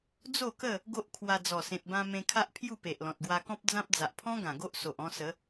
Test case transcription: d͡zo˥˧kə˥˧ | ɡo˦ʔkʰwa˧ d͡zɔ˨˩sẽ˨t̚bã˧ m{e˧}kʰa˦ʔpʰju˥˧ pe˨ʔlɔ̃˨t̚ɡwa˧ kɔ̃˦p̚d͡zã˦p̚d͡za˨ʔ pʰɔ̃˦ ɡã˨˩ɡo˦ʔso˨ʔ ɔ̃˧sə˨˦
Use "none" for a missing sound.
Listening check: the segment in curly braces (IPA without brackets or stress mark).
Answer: ẽ˧